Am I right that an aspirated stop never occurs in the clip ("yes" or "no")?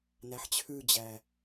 no